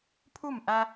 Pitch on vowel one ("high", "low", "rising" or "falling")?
falling